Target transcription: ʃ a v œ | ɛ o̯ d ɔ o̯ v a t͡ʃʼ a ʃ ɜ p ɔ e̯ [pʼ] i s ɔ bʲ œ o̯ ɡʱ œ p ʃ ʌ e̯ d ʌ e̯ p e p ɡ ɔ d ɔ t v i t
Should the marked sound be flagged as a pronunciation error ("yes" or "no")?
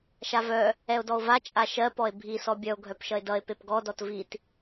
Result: yes